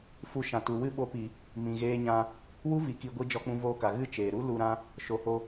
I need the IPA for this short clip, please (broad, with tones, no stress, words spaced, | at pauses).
fu˧ ʃã˨ tu˨wɨ˦ ɓo˧pi˨ | mĩ˨ɣeː˧ɲã˧ | wu˦vi˨ki˨ ɡʷi˧ d͡ʒɔ˧k͡pũ˧voː˧ka˨ ɣɨ˦˨t͡ʃeː˨ɾu˦ lu˧ɾã˦ | ʃo˨ho˧